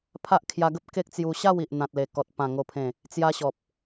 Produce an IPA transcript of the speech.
pʰ a˦ ʔ kʰ j a˧ ɡ ə˦ p̚ k e˦ k̚ t͡s j u˧ ɕ a˥˧ w i˨ ʔ n̪ ã˨ t̚ l e˨˩ k ɔ˨ t̚ p ã˨˩ ŋ o˨˩ pʰ ẽ˨˩ | t͡s j a˧ ɕ ɔ˨ p̚

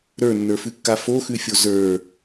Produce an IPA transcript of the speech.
ɾ ə˞ nː ə˞ f ʉ kː a f o x ʉ fʲ o z ə˞

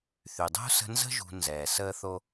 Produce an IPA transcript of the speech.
θ y˩ dˤ ṳ˥ s ə̤˦ n z ə̤˥ ʒ ṳ˨ n z ɛː˩ s əː˥ θ o˥

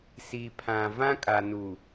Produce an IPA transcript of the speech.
s i˨ pʰ ã˨ v ã˦ kʼ a˨ n u˨

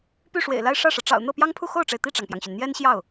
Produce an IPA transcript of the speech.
p y˥˩ ʂ w ḛ˨˩ ɪ̯ l a˥˧ ɪ̯ ʂ ä˥˩ ʂ ɤ˩ ʈ͡ʂ ɑ̰˨˩ ʊ̯ n̪ ɤ˥˩ p j ɑ˥ ŋ pʰ u˥˧ x o˥˩ ʊ̯ ʈ͡ʂ e˩ ɪ̯ t̪ i˥˩ ʈ͡ʂ ɑ˩ ŋ p j ɑ˩ ŋ ɕ y˩ n n̪ j ɛ˥ n ɕ j ɑ˥˩ ʊ̯

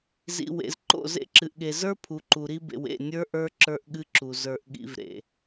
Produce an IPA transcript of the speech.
z ḭ˨ w ḛ˨ z ǃ o̰˦˨ z ḛ˦ ǁ ɨ˨ ʔ ɠ e˨ z ə˞˦ pʰ u˨ ǃ u˨ ɾ i˦ b ḛ˨ w ḛ˦˨ nʲ ə˞˦ ʔ ə˞˦ ǁ ə˞˦ ʔ ɠ ɨ˦ ǁ u˨ z ə˞˨ ʔ ɠ ḭ˨ v ɾ ḛ˨

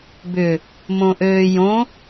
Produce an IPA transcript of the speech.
b ʏ | m õ ʔ øː j õ

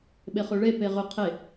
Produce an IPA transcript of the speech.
ɓ e χ ø ɭ e p e ʁ ʏ qʰ e

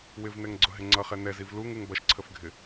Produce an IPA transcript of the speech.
w ɪ v n ɛ ŋ ɡ͡ǀ ʊ ɦ ɪ ŋ͡ǀ ʌ χ ɛ n ɛ z i v l u ŋ u ŋ b ʌ ʃ ǀʰ ə f ɡʱ ɪ

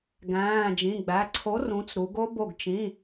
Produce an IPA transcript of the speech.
ɡ æ̃ː˩˧˩ d͡ʒ ĩ˩˧˩ ɡ͡b æ˩˧˩ ǀʰ o˨˥ r ũ˨˥ t͡s ɾ u˩˧ ɡ o˦˥ b o˧˩ ɡ t͡ʃ ĩ˩˧˩

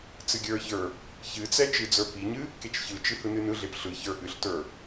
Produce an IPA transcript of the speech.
t͡s ɨ ɡʲ ə˞ ç ə˞ | ç ɨ t͡s ɛ t͡ʃ ɨ d͡z ə˞ p i ɲ ɨ | k e t͡ʃ ç ɯ t͡ʃ ɨ h ɯ n ɨ n ɯ ɮ e p ɬ ɯ ç ə˞ ʔ ɨ ɬ t ə˞

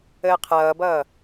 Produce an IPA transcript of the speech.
əː qʰ ʌː b ʌː

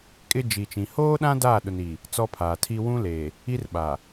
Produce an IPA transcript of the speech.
kʼ ɪ˦ d͡ʒ i˨ t͡ʃ ĩ˨ h oː˦ ɗ ã˦ d aː˦˨ ɗ ʊ˨ n i˨ | t͡s ɔ˦ pʰ aː˨ tʰ i˦ w ũ˦ l e˨ | i˦ r ɓ a˨

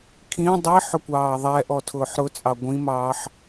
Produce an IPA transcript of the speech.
kʰ ĩ dˤ i ħ ʊ kʷ ɑː ðˤ ɛ ʔ ɔ tʰ ʊː ħ ɾ ʊ t͡sʼ ɑ ɡʷ ĩ m ɑː ħ

